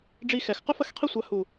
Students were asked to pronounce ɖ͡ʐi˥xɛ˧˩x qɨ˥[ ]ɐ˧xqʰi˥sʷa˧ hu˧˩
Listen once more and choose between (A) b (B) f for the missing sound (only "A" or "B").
B